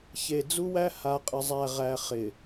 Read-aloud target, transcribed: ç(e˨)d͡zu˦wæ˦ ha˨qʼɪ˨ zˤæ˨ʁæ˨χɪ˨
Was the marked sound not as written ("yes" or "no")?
no